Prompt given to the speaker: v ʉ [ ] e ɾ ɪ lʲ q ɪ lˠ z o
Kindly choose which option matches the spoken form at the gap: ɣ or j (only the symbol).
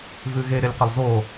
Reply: ɣ